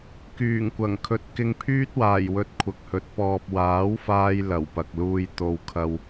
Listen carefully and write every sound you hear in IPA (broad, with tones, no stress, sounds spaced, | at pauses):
k yː˨˩ ŋ kʷ ɐ˨˩ ŋ kʰ ɵ˨˥ t̚ k ɪ˧ ŋ pʰ yː˥ t̚ w aː˨˩ j w ɵ˧ t̚ kʷʰ ɐ˨ k̚ h ɵ˨ t̚ p ɔː˨ p̚ w aː˨˥ w f aː˧ j l ɐ˨˩ w p ɐ˨ k̚ l uː˧ j t̪ o˨ w kʰ ɐ˧ w